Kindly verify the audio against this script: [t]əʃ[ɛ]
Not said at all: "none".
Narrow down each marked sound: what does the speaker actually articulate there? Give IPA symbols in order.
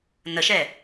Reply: n, ɛ

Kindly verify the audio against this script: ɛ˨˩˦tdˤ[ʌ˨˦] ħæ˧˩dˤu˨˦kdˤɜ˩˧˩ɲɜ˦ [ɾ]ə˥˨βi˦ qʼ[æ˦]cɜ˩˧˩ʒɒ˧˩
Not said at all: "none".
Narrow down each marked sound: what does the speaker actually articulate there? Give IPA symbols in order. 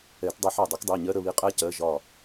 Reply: ʌ˨˦, ɾ, æ˦

